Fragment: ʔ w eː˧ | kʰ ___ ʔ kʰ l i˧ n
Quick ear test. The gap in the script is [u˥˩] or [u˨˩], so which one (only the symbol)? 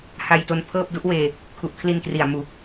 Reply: u˨˩